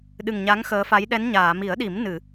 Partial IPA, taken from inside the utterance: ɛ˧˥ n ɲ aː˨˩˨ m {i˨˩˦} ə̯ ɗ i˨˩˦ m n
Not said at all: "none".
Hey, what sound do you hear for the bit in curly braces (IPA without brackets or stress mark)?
i˨˩˦